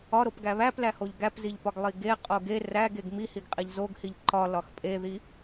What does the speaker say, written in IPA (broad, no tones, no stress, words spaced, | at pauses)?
ɒɾop ɡæβæplæ hoʎɡæpziʎpɒɡ lˠiɡe qʼoɡe ræɡeɡ mihiɡqʼiʎ zoɡhiʎ ǃɒlɒx pʼeði